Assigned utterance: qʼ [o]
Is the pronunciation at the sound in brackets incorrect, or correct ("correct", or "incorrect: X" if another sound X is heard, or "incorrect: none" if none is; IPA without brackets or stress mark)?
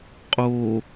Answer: correct